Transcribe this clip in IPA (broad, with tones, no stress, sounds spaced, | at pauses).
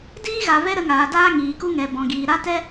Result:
d iː˦ ɣ a˨ v ɛ˦ ɾ ə˧ ŋ aː˨ d aː˦ ŋ iː˨ k u˧ ŋ ɛ˨ b ɔ̃˨ ɡ iː˨ ɾ a˦ t ɛ˦